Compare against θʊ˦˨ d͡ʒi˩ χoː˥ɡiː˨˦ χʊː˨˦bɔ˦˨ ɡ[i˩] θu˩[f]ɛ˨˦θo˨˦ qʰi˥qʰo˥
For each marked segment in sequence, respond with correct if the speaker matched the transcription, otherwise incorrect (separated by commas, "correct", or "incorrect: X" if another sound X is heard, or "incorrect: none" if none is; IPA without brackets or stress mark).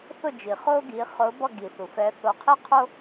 correct, correct